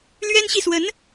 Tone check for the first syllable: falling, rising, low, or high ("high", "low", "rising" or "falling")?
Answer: high